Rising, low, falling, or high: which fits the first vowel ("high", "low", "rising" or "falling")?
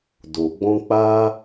low